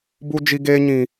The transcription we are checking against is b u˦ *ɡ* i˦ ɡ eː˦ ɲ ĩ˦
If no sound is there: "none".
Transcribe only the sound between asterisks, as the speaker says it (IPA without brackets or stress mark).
d͡ʒ